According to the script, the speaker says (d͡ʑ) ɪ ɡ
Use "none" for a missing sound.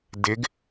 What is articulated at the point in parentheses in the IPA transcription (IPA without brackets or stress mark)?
d